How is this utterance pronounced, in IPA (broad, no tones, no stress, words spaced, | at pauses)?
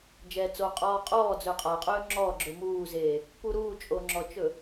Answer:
d͡ʒɛːt͡soqʼɔː qʼɔː d͡zɵːqʼaqʼɵː ŋ͡ǁɔːɡ͡ǁɵ muːzeː | puɾuːt͡ʃʼo ŋ͡ǁɔt͡ʃɵ